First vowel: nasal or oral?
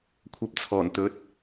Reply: oral